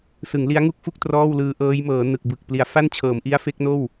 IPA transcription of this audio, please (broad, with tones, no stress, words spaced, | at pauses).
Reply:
sɯ˩˦ŋli˦˥a̯ŋu˥˩k̚fu˥˩k̚ trɔː˥˩wlɯː˧ʔɤː˦˥j mɤː˩˦nɯ˨˩k̚ bɯ˨˩k̚ pli˩˦a̯fa˥˩nt͡ɕʰɤː˩˦mʔi˦˥a̯ fe˦˥k̚noː˥˩w